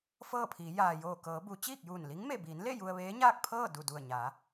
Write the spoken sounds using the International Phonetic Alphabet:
f ɤː˥˨ pʰ iː˩˧ j aː˩ j oː˧˩ k ɤː˩˧ b u˩˧ t͡ɕ iː˥˨ k̚ j uː˧˩ n l i˧˥ ŋ m e˧˩ b iː˩˧ n l e˥˨ j u˧ ə̯ ʋ eː˧˥ ɲ aː˥˨ k̚ pʰ ɤː˥˨ d u˧˩ d u˧˩ ə̯ ɲ aː˩˧

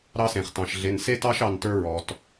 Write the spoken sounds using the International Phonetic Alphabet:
ɾ ɑ˦ s ẽ˩ χ t ɑ̃˩ ʃ ɮ e˩˧˩ n s e˦ t ɑ˦ ʃ ɑ˩˧˩ n t ə˞˦ ɹ ɔ˩ t

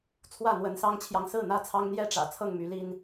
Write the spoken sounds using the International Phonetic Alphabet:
t͡sʰ w ä˥˨ n̪ w ə˨˦ n s ɑ˦ ŋ t͡ɕʰ j ɑ˨ ŋ s ɹ̩˥˨ n̪ ä˥˨ t͡sʰ ɑ˦ ŋ n̪ j ɛ˥˨ ʈ͡ʂ ä̰˨˩ t͡sʰ ɤ˥˨ ŋ m y˨˦ l i˦ n

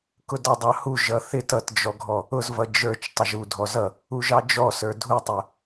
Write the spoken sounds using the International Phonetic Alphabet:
k ʊ d ɑ dˤ ɑ h u ʒ ʌ θ ɪ t ʌ t d͡ʒ ɔ ɡʱ ɔ | ʊ z v ʌ d͡ʒ ə˞ t͡ʃ tˤ ʌ ʒ u dʱ ɔ z ʌ | u ʒ ɑ d͡ʒ ɔ s ə˞ dʱ u tˤ ʊ

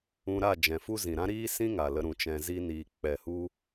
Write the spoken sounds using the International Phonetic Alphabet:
ũ˧ ɾ a˦˨ d͡ʒ ɛ̃˨ f u˦ z ĩ˨ ɾ ã˦ ɾ iː˦ s ĩ˦ ŋ a˨ l ə˨˦ ɾ ũ˨ t͡ʃ ɛ̃˧ z i˦ n iː˧ k͡p ɛ˨ h u˧

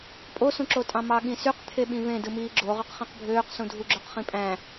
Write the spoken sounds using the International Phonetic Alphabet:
pʼ o s ũ ǁ o tʼ ɑ̃ m ɑ ɠ ĩ s y q t̪ʰ e ɓ ĩ v ẽ d ɯ m iː ɡ͡ǁ o ʁ ø q χ ĩ q bʱ øː q s ũ dʱ u ɡ͡ǁ ø q χ ĩ pʼ æ̃

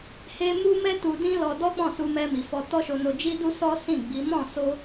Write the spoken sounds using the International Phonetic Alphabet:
h e˧ m u˦ m ɛ˦ t u˧ d ĩ˦ l ɔ˧ d ɔ˦ k͡p ɔ̃˦˨ s u˧ m ɛ˧ m i˨ f ɔ˧ t ɔ˦ ʃ o˧ n o˧ d͡ʒ i˦ d u˦ s ɔ˦ s ĩ˦˨ ɡ͡b i˨˦ m ɔ̃˦˨ s o˧

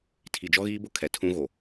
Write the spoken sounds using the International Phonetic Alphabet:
tʰ i˨ d͡ʒ ɔ˦ ɣ iː˦ b ʊ˦ kʰ ɛ˨ tʰ ũ˦ ɣ o˨

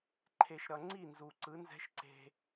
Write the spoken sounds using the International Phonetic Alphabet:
ǃʰ e˨ ʃ ɾ ʌ˨ ŋ͡ǀ i˦˨ n z u˨ ǀ ɯ˨˦ n z ɛ̤˦ ʃ ǀ e̤˦

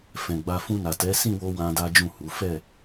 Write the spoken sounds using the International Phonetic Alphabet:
f ɛ̃˧ ɡ͡b a˧ f ũ˧ n a˨ t ɛ˨˦ s ĩ˦˨ w o˧ w ã˦ d a˦ d͡ʒ ũ˦˨ h u˨˦ f ɛ˦˨

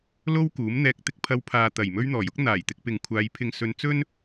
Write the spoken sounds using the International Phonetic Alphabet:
l o˥ w k uː˨˥ m n̪ ɛː˧ k̚ t̪ ɪ˥ k̚ pʰ ɐ˧ w pʰ aː˨ t̪ ɐ˨˩ j m ɵ˥ ɥ n̪ ɔː˨˩ j ʊ˥ k̚ n̪ aː˨˩ j t̪ ɪ˧ k̚ p ɪ˨ ŋ kʷʰ aː˨˧ j pʰ ɪ˨ ŋ s ɵ˨˧ n t͡s ɵ˥ n

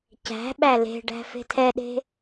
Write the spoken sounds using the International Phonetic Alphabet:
c æ̤ ɓ æ l e̤ ɖ æ̤ f e̤ tʰ ɛ ɗ e̤

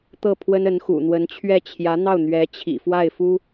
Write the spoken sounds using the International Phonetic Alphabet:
t̪ ɤ˥˩ pʰ w ə˥ n ə˧˥ n x ṵ˨˩ n̪ w ə˧˥ n t͡ɕʰ ɥ ɛ˥˩ t͡ɕʰ j ä˧˥ n̪ ɑ˥˩ ʊ̯ n̪ ɥ ɛ˧˥ t͡ɕʰ ḭ˨˩ f w a˥˩ ɪ̯ f u˥

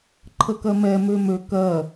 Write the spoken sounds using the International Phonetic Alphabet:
ǃʰ ə k ɜ m ɛ m ø m ø k ɜ

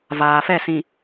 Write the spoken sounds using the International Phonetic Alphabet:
v aː˨ f ɛ˦˨ s ĩ˨

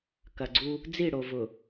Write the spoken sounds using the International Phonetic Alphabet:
k ɐ˨ ɡ͡ǀ u˦ | d͡z i˦˨ ɽ o˨ v ʊ˨

